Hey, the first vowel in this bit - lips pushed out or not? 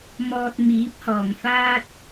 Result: yes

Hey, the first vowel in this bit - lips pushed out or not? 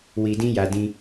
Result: no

